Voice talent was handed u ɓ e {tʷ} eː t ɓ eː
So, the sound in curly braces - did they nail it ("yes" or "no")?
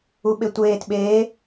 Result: yes